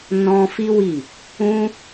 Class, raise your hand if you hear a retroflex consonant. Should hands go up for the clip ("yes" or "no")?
no